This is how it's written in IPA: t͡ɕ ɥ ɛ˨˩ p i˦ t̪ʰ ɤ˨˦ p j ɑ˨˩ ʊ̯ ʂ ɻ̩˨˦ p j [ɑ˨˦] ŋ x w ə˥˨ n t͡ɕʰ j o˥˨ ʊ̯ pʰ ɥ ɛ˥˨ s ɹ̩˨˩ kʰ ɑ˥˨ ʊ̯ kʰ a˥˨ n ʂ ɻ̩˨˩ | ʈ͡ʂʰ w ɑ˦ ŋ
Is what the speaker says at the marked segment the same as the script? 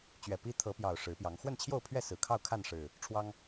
yes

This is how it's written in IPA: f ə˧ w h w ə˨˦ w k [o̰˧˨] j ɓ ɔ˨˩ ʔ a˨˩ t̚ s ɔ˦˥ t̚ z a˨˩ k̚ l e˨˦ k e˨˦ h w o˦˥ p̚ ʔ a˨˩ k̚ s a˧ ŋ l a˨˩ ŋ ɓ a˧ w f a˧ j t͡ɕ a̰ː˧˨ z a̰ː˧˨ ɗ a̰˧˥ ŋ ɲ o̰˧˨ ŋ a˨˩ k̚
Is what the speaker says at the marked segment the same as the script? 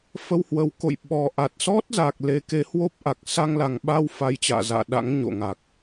yes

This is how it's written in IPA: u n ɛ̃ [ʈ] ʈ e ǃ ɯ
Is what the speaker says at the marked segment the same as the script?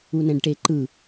no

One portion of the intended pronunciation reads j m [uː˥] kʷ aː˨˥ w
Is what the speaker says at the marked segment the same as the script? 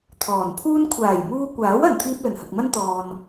no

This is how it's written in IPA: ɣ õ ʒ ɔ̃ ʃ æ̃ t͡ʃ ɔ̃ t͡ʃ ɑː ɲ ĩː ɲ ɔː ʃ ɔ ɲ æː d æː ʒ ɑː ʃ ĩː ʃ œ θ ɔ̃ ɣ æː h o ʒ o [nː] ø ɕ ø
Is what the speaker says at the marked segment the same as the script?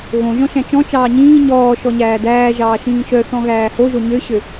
no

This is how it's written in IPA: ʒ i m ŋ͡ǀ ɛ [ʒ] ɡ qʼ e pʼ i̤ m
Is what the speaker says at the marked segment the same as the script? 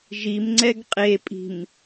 no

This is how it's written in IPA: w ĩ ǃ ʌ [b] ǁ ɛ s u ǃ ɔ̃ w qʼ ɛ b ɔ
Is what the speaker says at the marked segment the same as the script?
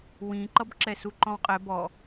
yes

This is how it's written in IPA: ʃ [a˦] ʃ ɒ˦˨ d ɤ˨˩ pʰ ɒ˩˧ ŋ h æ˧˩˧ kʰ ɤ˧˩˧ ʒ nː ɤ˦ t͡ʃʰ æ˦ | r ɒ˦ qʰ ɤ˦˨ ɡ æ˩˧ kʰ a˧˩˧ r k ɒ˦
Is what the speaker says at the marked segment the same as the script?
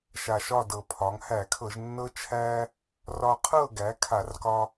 no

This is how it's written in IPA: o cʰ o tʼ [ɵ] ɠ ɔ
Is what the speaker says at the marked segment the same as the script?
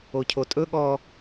yes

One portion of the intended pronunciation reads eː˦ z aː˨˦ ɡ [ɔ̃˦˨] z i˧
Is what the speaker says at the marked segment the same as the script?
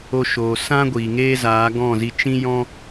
yes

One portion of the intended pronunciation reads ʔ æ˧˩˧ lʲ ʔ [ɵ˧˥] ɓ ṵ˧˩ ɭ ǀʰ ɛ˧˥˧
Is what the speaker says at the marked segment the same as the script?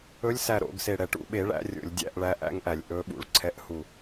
yes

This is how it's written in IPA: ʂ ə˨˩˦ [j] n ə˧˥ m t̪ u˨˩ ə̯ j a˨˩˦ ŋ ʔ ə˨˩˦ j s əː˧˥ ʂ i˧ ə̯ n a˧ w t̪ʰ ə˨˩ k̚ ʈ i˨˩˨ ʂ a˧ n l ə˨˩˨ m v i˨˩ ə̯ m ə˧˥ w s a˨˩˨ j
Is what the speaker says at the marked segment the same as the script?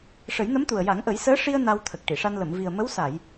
yes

